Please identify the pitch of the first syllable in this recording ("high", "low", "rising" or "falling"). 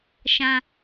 low